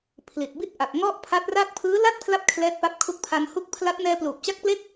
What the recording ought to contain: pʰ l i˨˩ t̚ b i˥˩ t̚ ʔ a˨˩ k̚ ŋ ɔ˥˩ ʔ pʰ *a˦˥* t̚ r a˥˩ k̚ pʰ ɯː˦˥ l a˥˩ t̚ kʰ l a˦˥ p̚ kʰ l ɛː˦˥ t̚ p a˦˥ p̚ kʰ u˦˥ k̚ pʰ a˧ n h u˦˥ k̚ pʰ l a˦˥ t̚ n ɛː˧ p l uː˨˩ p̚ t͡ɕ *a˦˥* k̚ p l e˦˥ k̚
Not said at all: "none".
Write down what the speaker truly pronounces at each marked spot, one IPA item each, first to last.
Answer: a˦˥, a˦˥

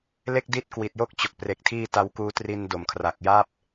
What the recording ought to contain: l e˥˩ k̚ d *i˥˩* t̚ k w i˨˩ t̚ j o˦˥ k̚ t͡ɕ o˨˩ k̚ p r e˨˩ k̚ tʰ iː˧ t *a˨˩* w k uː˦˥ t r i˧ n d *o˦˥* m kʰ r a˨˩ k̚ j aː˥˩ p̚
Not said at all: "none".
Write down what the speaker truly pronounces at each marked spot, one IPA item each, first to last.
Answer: i˦˥, a˦˥, o˨˩

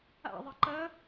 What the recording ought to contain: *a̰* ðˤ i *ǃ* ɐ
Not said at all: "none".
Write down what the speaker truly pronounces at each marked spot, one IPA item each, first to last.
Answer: a̰, ǃ

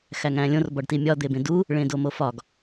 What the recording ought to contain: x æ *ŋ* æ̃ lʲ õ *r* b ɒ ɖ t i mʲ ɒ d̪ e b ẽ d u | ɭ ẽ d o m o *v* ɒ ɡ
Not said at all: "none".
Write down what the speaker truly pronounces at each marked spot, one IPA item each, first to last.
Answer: ŋ, r, f

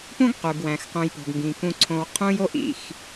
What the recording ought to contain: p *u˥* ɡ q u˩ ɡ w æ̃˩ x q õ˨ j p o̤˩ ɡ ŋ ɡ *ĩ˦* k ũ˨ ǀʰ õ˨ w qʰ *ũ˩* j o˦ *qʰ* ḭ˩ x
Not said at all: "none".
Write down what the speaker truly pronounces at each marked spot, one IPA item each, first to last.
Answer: ũ˥, ĩ˩, ũ˦, ʔ

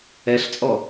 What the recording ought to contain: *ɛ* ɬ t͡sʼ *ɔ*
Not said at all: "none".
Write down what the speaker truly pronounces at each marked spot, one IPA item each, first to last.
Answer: ɛ, ɔ

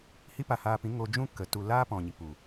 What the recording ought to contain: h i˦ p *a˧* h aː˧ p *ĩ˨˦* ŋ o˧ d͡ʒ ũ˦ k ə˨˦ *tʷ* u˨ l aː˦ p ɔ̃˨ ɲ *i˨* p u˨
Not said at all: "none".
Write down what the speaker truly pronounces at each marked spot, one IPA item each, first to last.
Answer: a˧, ĩ˨˦, t, i˨

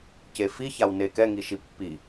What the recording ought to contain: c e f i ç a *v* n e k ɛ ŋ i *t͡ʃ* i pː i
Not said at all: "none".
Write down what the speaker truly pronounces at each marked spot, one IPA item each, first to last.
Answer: w, ʃ

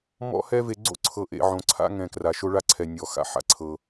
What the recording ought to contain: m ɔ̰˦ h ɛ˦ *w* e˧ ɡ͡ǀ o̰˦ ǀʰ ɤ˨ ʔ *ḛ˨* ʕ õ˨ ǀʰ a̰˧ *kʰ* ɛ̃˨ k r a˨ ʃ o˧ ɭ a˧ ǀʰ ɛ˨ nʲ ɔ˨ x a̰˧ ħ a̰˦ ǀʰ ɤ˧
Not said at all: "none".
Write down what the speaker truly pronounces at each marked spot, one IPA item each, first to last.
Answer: v, ḛ˨, ŋ

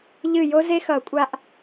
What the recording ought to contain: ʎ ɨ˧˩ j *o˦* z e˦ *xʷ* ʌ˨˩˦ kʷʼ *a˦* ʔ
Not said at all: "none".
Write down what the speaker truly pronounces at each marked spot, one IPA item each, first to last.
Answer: o˦, x, a˦

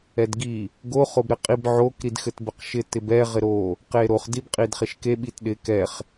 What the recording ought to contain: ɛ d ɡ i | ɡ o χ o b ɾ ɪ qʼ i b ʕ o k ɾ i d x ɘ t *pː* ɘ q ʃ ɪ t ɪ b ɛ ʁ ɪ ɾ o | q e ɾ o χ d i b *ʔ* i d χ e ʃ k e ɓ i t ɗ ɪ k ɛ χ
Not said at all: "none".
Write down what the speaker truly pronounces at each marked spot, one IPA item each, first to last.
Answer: b, qʼ

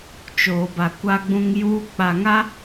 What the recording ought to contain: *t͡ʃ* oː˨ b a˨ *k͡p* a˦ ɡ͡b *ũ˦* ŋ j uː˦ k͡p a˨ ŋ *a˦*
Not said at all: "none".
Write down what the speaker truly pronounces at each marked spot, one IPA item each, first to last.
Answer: t͡ʃ, kʷ, ũ˦, a˦

